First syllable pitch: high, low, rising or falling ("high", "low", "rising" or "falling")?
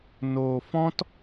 low